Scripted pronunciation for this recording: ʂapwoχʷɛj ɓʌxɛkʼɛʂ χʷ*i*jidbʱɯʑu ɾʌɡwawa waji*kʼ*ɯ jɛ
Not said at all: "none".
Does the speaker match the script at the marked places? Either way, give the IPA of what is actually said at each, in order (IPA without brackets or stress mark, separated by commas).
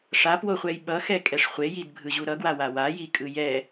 e, kʼ